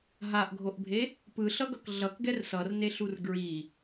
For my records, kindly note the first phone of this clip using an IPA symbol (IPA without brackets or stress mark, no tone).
ɦ